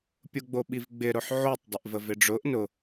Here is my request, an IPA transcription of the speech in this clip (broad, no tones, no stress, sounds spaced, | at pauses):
pʲ ʊ ɡ͡b o ɓ i v ɡ͡b ɪ ɾ ʊ ħ ʕ o tˤ dˤ ɪ ʔ v ə v ɪ ɖ͡ʐ ʊ ʔ n ʊ